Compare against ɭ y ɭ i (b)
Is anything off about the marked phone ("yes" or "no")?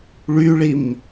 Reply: yes